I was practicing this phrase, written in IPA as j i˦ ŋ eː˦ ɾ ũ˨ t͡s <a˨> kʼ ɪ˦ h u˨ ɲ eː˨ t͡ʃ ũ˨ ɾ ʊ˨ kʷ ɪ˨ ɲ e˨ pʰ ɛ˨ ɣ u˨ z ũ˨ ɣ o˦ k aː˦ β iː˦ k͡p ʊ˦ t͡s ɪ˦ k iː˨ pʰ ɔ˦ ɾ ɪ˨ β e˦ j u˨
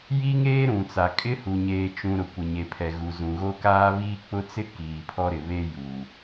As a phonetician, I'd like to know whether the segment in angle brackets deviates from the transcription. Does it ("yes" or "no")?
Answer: no